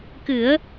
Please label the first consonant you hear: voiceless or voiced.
voiceless